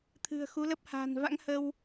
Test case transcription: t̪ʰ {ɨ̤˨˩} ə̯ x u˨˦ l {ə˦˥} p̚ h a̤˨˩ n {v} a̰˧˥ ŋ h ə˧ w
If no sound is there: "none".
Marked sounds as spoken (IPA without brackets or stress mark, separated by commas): ɨ̤˨˩, ə˦˥, v